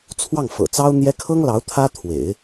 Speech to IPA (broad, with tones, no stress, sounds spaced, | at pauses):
t͡sʰ w ɑ˥˩ ŋ f ɤ̰˨˩ t͡s ɑ˥ ʊ̯ n̪ j ɛ˥ kʰ ɤ˥ ŋ l ɑ˧˥ ʊ̯ t̪ʰ ä˥ t̪ʰ w ḛ˨˩˦ ɪ̯